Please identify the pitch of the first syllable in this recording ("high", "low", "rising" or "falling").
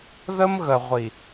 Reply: high